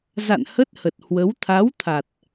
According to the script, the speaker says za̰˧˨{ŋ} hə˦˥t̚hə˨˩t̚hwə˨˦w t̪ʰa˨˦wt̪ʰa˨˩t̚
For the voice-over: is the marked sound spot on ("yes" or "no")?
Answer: no